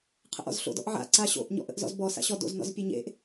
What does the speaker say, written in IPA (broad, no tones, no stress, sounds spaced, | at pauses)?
qʰ ə̰ ʔ ɔ̰ z ɬ o̰ d ɔ̰ ʔ ʕ a̰ ǀ a ɕ o̰ ʔ ɲ ɔ̰ ʔ ə̰ ʔ z ɔ̰ z b ɔ s a̰ ɕ ɔ d o̰ z n ɔ̰ z pʲ e ɲ ḛ ʔ